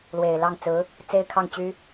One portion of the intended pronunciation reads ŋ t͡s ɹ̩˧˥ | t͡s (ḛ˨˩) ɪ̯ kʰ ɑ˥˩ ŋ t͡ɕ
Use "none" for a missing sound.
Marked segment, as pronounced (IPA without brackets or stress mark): e˥